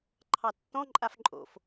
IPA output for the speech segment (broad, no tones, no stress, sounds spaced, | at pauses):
ǃʰ ɑ tː ɔ̃ ǃʼ a f ǃʼ o̰ f